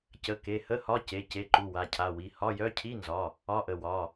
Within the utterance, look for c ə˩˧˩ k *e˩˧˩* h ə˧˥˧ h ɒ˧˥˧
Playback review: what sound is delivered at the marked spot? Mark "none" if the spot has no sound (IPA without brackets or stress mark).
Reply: e˩˧˩